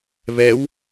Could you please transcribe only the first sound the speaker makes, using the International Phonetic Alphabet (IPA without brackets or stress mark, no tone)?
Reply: β